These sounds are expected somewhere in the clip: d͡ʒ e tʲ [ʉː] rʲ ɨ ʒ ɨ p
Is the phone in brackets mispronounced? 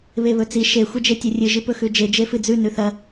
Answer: yes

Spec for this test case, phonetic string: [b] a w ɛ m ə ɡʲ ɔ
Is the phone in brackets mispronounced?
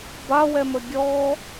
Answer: no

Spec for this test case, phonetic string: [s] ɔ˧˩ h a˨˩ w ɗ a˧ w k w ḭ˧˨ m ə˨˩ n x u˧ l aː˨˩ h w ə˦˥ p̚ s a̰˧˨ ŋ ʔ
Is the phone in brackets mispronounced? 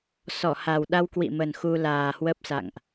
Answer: no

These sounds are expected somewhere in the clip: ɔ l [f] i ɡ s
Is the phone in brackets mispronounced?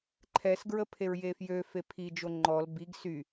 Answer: yes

